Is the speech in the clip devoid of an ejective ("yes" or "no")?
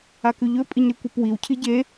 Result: no